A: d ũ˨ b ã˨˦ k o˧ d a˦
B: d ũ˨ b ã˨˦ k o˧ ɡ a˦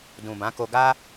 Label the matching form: B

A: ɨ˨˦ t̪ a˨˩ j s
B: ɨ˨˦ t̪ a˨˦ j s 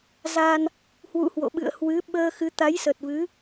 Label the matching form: B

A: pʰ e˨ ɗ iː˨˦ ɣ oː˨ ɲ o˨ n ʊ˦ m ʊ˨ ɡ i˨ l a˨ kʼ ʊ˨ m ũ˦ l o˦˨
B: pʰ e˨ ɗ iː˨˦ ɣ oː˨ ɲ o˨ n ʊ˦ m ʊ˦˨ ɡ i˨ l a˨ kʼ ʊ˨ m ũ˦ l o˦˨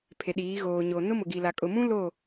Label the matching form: A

